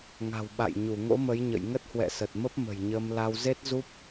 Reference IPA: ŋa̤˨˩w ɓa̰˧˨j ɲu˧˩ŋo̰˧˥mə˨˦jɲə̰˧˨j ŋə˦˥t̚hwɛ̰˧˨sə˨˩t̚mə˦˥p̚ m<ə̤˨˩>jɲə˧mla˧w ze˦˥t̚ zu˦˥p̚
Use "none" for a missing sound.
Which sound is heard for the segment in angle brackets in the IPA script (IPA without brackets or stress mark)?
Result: ə̤˨˩